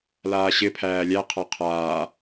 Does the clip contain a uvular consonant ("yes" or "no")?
yes